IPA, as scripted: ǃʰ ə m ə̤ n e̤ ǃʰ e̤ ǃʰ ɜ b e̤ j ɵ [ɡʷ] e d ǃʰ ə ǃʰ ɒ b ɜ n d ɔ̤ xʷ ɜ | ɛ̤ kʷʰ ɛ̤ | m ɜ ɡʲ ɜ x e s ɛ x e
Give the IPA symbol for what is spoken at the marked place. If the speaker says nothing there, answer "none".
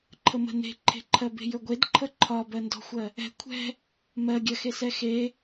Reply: ɡʷ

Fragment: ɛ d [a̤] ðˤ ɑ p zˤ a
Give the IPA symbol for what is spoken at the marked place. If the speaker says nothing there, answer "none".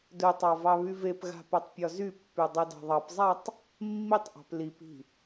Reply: ɑ̤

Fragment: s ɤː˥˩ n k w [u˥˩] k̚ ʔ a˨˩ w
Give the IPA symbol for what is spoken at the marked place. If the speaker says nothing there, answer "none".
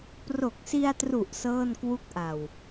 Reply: u˥˩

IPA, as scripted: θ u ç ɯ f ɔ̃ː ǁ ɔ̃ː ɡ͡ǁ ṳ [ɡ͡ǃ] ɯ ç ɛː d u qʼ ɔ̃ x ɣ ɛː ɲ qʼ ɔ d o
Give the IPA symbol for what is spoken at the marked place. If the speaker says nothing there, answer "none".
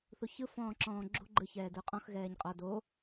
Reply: ɡ͡ǃ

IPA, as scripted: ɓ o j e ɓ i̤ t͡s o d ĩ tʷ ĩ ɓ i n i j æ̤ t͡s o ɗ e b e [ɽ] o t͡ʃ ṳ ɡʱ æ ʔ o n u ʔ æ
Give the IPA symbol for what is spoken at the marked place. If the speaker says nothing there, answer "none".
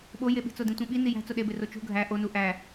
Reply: r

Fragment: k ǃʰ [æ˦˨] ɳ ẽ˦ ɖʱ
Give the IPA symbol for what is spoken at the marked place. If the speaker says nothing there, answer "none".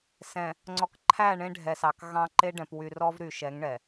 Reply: æ˦˨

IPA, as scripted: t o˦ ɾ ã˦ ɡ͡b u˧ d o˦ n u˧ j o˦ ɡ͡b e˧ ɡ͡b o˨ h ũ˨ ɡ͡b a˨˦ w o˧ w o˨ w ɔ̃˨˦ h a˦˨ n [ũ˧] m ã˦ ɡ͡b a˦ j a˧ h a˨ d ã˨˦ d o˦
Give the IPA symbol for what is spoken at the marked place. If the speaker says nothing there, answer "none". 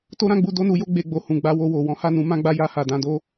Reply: ũ˨˦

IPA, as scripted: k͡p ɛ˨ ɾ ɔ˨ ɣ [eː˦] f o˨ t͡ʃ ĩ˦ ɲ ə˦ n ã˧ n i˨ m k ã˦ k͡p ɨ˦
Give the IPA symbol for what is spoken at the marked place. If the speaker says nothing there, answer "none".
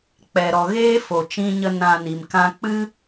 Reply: eː˦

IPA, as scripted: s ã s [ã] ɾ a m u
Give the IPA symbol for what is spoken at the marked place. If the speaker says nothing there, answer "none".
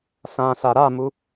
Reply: a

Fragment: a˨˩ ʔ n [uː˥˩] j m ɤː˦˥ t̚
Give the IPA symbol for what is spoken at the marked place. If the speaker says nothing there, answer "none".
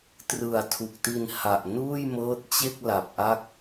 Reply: uː˥˩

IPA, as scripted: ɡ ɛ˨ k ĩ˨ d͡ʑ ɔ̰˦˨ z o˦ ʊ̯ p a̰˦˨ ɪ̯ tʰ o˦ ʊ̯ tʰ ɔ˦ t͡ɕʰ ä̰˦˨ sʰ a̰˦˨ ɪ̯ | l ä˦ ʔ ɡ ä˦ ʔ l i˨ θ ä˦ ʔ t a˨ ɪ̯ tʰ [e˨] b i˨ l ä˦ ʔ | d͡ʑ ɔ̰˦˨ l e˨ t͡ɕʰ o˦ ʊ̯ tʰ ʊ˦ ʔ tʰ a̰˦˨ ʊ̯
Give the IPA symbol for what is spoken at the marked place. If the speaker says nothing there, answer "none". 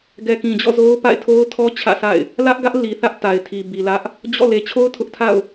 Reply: i˨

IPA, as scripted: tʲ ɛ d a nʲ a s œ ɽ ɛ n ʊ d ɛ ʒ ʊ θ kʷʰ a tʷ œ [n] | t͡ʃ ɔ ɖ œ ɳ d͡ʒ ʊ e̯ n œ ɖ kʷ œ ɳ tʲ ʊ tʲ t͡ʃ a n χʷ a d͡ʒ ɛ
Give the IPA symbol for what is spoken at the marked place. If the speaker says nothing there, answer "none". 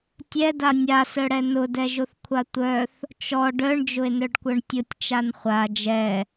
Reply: θ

